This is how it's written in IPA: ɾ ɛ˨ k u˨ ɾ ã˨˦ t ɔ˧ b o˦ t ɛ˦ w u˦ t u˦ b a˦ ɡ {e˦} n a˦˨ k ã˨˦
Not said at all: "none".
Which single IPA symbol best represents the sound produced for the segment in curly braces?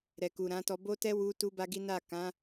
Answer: i˦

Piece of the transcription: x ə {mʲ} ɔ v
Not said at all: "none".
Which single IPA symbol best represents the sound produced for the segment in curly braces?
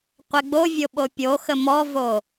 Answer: m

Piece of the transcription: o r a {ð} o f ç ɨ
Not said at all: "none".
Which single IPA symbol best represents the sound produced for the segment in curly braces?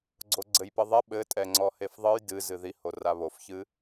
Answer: β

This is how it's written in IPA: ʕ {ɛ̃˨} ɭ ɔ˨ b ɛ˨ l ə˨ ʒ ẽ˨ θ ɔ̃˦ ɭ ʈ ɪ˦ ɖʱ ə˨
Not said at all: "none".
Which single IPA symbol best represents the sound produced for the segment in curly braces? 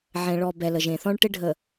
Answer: ɛ̃˨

